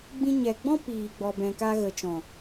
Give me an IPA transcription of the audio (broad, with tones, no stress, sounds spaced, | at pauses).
ɡ͡b ĩ˧ ɲ ɛ˨ ɡ͡b ɔ̃˦ p iː˨ ɡ͡b ɔ˨ b ɛ̃˨ k a˧ ɣ ə˨ t͡ʃ ɔ̃˨